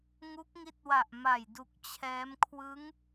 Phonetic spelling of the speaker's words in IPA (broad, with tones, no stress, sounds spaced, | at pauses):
ŋ u˦˥ k̚ ŋ i˦˥ t̚ w a˨˩ ʔ m a˨˩ j d u˨˩ k̚ t͡ɕʰ ɛː˦˥ m kʰ w ɯ˦˥ ŋ